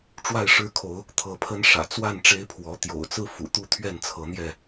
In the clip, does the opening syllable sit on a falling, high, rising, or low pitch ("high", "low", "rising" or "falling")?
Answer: falling